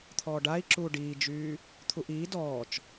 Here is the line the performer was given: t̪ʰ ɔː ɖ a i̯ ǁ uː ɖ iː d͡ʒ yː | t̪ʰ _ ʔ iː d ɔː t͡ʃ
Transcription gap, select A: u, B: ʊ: A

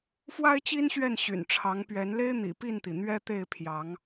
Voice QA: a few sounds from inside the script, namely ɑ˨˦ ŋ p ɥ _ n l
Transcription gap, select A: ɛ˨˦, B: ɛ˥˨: A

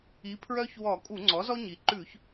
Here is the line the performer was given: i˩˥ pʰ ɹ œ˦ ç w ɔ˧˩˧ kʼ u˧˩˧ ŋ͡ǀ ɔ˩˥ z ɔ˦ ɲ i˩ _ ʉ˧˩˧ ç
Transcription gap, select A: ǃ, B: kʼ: A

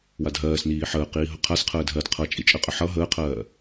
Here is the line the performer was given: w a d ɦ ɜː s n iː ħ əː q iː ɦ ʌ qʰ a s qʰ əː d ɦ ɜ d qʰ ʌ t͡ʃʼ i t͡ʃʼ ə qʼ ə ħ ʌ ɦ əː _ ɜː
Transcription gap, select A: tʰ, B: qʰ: B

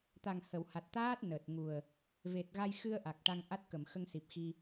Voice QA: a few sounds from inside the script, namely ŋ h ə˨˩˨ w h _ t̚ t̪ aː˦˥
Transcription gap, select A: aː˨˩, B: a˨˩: B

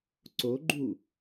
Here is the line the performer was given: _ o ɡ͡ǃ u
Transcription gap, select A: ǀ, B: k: A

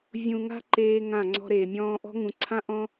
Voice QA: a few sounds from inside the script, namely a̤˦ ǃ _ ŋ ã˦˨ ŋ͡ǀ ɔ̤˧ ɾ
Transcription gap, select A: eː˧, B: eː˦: B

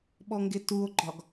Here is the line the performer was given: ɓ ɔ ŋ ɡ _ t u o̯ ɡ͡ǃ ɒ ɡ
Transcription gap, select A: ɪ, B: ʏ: A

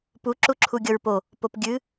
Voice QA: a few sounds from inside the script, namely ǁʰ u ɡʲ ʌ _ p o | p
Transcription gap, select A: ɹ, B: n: A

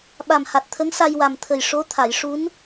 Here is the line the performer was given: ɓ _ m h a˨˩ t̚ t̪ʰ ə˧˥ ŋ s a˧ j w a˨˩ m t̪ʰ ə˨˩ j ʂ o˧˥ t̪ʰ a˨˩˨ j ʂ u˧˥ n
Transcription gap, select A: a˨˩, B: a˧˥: A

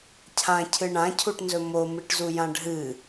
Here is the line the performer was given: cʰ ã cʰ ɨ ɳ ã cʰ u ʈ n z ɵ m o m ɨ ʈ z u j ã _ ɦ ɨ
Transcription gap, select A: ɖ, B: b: A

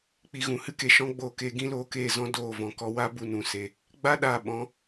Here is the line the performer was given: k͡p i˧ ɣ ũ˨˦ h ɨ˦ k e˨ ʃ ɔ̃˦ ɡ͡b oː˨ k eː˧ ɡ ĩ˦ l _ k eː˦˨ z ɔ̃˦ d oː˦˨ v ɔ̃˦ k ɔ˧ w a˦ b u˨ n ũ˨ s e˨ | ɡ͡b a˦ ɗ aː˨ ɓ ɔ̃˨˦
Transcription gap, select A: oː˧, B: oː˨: A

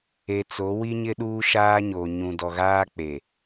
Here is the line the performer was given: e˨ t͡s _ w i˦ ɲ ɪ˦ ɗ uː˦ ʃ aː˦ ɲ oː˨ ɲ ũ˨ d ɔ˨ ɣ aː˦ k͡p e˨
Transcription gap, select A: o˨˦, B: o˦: A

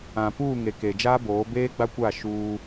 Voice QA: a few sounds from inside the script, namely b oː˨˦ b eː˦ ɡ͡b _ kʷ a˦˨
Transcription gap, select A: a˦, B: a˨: A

